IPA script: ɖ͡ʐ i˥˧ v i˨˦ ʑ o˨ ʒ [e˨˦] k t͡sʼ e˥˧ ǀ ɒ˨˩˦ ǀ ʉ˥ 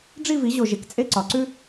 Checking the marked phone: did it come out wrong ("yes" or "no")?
yes